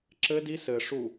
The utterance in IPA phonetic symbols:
ǁ ɘ d i s ɘ ʂ u

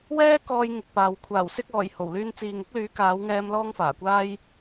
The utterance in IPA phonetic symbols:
w ɛː˥ k ɔː˧ j ŋ ɪ˨ k̚ p aː˨ w kʷʰ aː˨˩ w s ɪ˧ k̚ ɔː˨˩ j h o˨˩ w l yː˧ n t͡s iː˨ ŋ ɪ˥ k̚ l yː˨˥ k aː˨˥ w ŋ ɛː˧ m l ɔː˥ ŋ f aː˨˩ kʷ aː˥ j

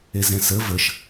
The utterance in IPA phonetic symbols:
e z ɛ̃ s ə v ə ʃ

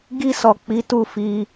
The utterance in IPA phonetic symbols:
ɡ i˧ s ɔ˨ k͡p i˨˦ t u˦˨ f i˧

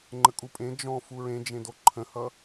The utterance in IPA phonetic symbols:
ŋ͡ǃ ə kʼ u pʼ ẽ d͡ʒ ɔ̃ f u ɹ ẽ d͡ʒ ẽ d o ǃʰ ə̃ h ʌ

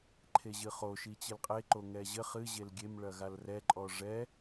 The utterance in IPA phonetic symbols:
ǃʰ e ʑ ɨ χ o ʃ i t͡ɕ ɨ l qʼ e ǃ o ŋ ɛ ʑ ɘ χ ɨ ʑ e l ɡʲ e m ɭ ɐ ɣ a l r ɛ ǃʼ ɔ ʐ ɛ

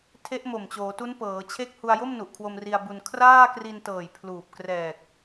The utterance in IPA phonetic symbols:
tʰ e˦˥ ʔ m o˨˩ m t͡ɕ oː˩˦ t u˦˥ n p ɤː˩˦ t͡ɕʰ e˥˩ k̚ h u˧ a̯ j o˥˩ m n u˨˩ ʔ kʰ w o˧ m r i˧ a̯ b u˧ n kʰ r aː˥˩ k r i˧ n t ɤː˨˩ j pʰ l uː˨˩ p̚ k r ɛː˨˩ k̚

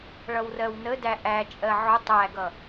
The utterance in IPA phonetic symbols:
ɭ ʌ w r ɜ w n ə d æ ʔ æ t͡ʃʼ ɜ ʕ ʊ tˤ æ ɡ ʌ

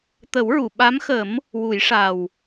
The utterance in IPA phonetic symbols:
t̪ ə˨˩˦ w ɹ u˨˩˨ ɓ a˧˥ m x ə˨˩˦ m | w u˨˩˦ j ʂ a˨˩ w

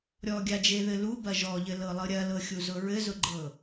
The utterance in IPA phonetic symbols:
ɾʲ ɔ ɡʲ a d͡ʒ e ð ɘ l u b ɐ ʒ ɔ ʎ ɘ l ɤ lˠ ɤ ɾʲ ɐ l ɤ xʲ u z ʊ ɹ ɘ z ʊ ɡ͡ǃ ɤ

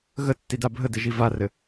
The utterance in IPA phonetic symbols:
ɣ ə tː i d a bʱ ə d ɘ ʒ i v a r ɘ

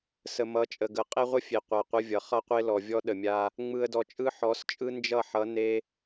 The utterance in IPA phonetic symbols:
s ə˨ m ʌ˨˦ t͡ʃʼ ə˨ ɡ ə˨ qʼ e˦ ʁʷ ə˦ fʲ e˨ qʷ a˨ qʷ ə˦ vʲ ʌ˨ χ ʌ˦ qʷ e˦ l ɔ˨ vʲ ɔ˦ ɗ ə˨ mʲ a˦ | ŋ͡m ɯ˨ ə̯ d ɔ˨ t͡ʃʼ ɯ˦ ħ ɔ˨˦ s t͡ʃʼ ɯ˦ n d͡ʒ ʌ˦˨ ħ ʌ˨˦ n e˦

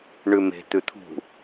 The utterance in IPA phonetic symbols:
ɳ ʉ m e̤ t̪ ʉ t̪ʰ ṳ

